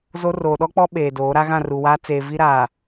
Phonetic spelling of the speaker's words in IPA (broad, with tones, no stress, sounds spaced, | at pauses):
z o˦ r oː˨ ɗ ɔ˦ k͡p ɔ˦ ɓ eː˨ d oː˨˦ ɾ a˦ ɣ ã˦˨ r u˨ w aː˦ t͡s eː˨ v i˦ ɾ aː˨